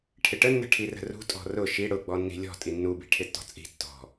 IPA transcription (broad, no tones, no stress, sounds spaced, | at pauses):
ʈʰ ɪ ʈ ə nː ə̤ ʈʰ i r ə̤ r ṳ tʼ ɔ̤ r ʊ ʃ i ɽ ʊ ɡ͡b ɔ nː i̤ lʲ ɔ̤ tʼ i nː u b i̤ ʈʰ ɪ tː ɔ̤ t͡sʼ i̤ tː ɔ̤